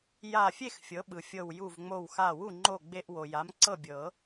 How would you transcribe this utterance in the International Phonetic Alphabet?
ja˧˩fʲe˥˨x fʲɤ˩˥ɓɯ˩fʲɤ˧˩w ju˧˩vŋ͡mo˧˩wxa˧˩wu˥˨ ŋ͡ǃo˥˨ɡ͡be˦ʔ wo˩ja˩˥mǀɤ˥˨ bʲɤ˨˩˦

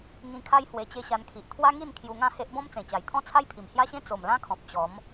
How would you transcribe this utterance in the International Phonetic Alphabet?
ŋĩ˧kʰa˦j hwe˧t͡ɕe˥˧ɕa˧nkʰi˨ʔ t̪ʰwa˦ŋi˥˧n kʰju˧ŋã˥˧he˦ʔ bɔ̃˦mt͡sẽ˨˩t͡ɕa˨˩jt̪ʰɔ̃˥˧ t͡sʰa˦jpʰi˨˩mhja˦ɕẽ˦ t͡so˨˩mlã˦kʰɔ̃˨p̚ t͡ɕɔ˨˦m

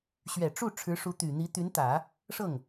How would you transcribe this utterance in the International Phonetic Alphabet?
ɕɥɛ˨˩ ʈ͡ʂu˥˩ ʈ͡ʂʰɻ̩˧˥ʂu˧˥t̪y˨˩n̪i˧˥ t̪y˧˥nt̪ä˨˩˦ | ʂɤ˥˩ŋ

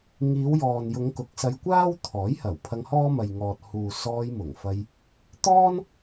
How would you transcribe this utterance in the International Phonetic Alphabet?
ŋiː˨˧wjɔː˨njʊ˨˧ŋ kʊ˨˥k̚sɐ˧jkʷaː˥w t̪ʰɔː˨˥jhɐ˨˩w pʰɐ˧ŋhɔː˥mɐ˨jŋɔː˨t̚ huː˨ sɔː˧jmʊ˨˩ŋfɐ˧j | t̪ɔː˥n

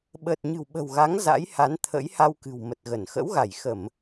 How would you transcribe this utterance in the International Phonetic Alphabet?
ɓəː˨˩t̚ɲɨ̤˨˩wɓə̤˨˩wɣa˨˦ŋ za̰˧˥jha˨˦nt̪ʰə̰˧˥jha˧w kɨ̤˨˩wmə˨˩t̚ɣə˧˩n xə̰˧˥wɣa˧˩jxə˧˩˨m

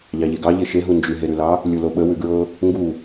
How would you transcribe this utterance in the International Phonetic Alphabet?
ʎɑʎeɡɑ ʎeʃeɦu nd͡ʒʉɦeɾʉlɑ | lʲuloɓə wʉɡɹɤ | ŋɡu

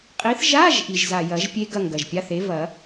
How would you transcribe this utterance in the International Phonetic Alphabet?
qʼi˨˥θ ʒa˧˥˧ʒ ʔi˨˩ʒza˨˩ jɐ˨˩˦ʒpʲe˦˥ ɡɐ˦˨ŋɡɐ˨˩ʒpʲa˧˥˧θe˨˥ vɐ˨˩˦

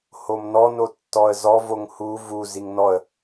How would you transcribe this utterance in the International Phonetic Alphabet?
homnɔ notːɔə̯zɔ voŋhu vu ziŋnɔə̯

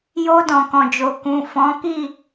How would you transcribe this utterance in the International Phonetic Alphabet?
jo˧ dɔ̃˨kɔ̃˨d͡ʒo˨ kũ˨ fɔ̃˨˦ki˦˨

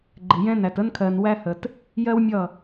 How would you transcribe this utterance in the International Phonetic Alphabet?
ɡ͡ǃɪ˨jɛ̃˦næ˨t ə˦nkʰɜ˨nwæ˦hə˨t | jɜ˦wmʲʌ˦˨

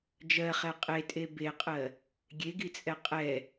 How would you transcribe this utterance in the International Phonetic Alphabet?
d͡ʒɜχɛ qʼetʼe beqʼɜ | ɡʲeɡit͡sʼɛ qʼɛ

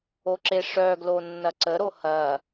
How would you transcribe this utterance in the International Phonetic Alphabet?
oǁeʂœɡlo nːɐǀəɾo hɐ

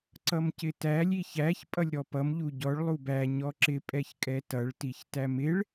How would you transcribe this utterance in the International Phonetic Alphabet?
ǀʌmcɪtælʲ içæç pʼʌlʲɾɔpʌm ʎuɟɔɭ lˠubæ ɲɔǁɪ pʼɛçkʼɛtʌɭ tiçtæmɪɭ

